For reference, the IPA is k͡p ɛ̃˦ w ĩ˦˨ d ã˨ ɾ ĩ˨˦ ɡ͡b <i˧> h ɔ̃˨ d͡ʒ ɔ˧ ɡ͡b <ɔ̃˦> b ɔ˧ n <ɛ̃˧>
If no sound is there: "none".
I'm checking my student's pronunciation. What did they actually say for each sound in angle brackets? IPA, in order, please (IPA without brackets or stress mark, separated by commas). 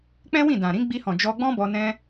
i˧, ɔ̃˦, ɛ̃˦